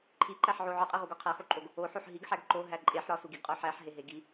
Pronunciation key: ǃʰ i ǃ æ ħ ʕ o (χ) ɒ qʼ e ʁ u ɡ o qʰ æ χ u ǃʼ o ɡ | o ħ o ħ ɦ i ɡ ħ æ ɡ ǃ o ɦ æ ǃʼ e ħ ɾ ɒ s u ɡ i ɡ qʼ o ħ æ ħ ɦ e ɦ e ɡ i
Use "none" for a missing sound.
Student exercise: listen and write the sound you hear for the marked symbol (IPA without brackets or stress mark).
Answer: ʕ